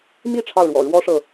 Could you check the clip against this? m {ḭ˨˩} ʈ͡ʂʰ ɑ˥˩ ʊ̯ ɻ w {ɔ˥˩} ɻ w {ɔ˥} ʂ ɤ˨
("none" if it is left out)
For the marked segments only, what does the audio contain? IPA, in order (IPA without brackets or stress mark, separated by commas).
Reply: i˥˧, ɔ̰˨˩, ɔ˥